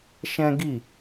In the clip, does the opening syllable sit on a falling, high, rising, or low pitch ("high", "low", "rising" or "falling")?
high